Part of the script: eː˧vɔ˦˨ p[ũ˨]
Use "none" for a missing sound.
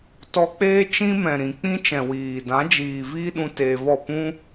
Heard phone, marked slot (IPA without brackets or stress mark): ũ˦